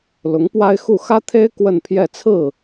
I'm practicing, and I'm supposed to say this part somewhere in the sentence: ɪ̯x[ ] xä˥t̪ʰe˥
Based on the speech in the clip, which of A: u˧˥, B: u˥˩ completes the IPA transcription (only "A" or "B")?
B